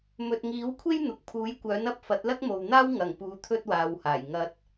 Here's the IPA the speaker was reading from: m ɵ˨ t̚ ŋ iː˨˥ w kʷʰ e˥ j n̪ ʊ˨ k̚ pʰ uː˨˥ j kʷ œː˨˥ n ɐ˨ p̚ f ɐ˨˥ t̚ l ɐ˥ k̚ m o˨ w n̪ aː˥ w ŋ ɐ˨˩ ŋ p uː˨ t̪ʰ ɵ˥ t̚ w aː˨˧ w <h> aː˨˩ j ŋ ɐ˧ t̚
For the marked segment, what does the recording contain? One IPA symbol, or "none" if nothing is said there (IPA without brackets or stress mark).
h